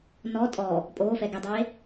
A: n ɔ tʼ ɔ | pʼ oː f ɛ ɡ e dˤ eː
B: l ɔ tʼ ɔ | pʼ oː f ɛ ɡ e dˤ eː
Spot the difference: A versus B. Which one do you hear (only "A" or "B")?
A